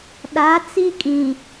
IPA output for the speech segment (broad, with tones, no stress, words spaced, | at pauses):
ɗa˨˦t͡si˦kʼĩ˨